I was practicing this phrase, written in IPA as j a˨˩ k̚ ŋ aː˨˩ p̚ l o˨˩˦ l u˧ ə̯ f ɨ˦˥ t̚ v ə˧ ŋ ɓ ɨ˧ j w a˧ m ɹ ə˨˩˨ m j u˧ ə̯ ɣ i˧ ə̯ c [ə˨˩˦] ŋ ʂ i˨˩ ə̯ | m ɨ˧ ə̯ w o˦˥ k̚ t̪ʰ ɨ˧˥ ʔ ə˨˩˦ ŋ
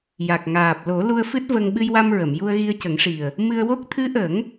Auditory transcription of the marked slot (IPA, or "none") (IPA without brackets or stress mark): ə˨˩˦